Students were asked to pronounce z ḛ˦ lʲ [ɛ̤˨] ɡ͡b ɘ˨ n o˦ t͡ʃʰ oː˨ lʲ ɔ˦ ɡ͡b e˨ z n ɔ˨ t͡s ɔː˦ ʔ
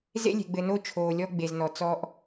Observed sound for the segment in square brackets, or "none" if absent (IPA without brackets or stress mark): ɛ̤˨